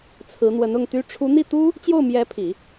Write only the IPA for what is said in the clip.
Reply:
t͡sʰɹ̩˧˥n̪wə˧˥nʊ˥˩ŋt̪y˥ ʈ͡ʂʰu˧˥n̪i˥˩t̪u˥ | t͡ɕjo˥˩ʊ̯mjɛ˧˥pʰi˨˩˦

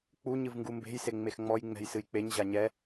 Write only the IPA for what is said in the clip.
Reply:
k͡pu ɲɨvŋɡumbe̤j seŋ͡mexŋ͡mɔj ŋ͡mɛ̤jsɨjk͡peɲ ʑaɲɛ

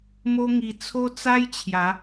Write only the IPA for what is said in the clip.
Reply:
mo˦ŋi˧ t͡sʰo˦t͡sa˦jt͡ɕʰja˨˦

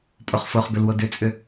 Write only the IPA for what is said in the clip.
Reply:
pʼoχfoχbʏlwo dʏt͡sʼʏ

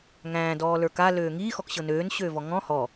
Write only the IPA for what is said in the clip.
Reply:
ŋæ̃ːdɔːlə˞ kaløː ŋiːxɔkɕɤ nøːnɕøːvɔ ŋɔ̃ hɔ

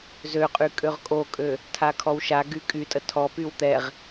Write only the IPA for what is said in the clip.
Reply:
zøqʼy kʼøʁkʼokʼø | tʰakʰɔwʃaɡy kʼytʼə tʰɔpyw t̪ɛʁ

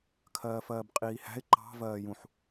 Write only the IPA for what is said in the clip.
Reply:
kʰɜːfɜːbqʼiːhæ̤ɪ̯ ǃɑ̤ vɜːjũħ

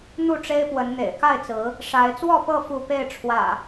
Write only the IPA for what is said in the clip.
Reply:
n̪u˥˨ʈ͡ʂe˦ɪ̯pwə˨˦n n̪ḛ˨˩ɪ̯ka˥˨ɪ̯t͡sɹ̩˨˦ | ʂa˨˦ɪ̯ t͡swɔ˥˨pɤ˥˨ fu˥˨ pe˥˨ɪ̯ʈ͡ʂʰwä̰˨˩

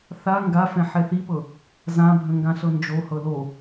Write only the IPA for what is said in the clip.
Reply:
θa ŋɡafɛ̃ ħɛθipɤ | zãbʱə̃ ŋɡãɬɤnd͡ʒo hɤlo

